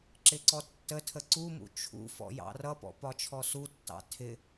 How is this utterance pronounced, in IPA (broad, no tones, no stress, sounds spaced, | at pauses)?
ǁ ɪ ǀ ɔ tː ə tʰ ə ǀ u m ṵ t͡ʃʰ ṵ f ɔ̰ j ɑ̰ r ʌ p ɔ̰ p ɒ t͡ʃʰ ɔ s u tː ɑ̰ tʰ ɪ